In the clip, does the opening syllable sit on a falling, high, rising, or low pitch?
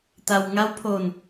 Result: low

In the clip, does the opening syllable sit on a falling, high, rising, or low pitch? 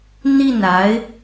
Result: falling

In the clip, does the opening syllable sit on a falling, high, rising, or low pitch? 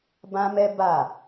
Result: high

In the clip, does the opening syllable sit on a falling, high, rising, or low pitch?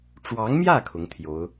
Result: rising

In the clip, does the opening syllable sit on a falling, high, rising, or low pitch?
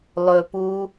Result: low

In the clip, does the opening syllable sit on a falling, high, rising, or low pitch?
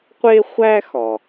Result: high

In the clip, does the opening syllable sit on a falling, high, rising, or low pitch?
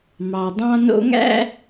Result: low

